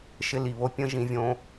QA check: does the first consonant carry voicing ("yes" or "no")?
no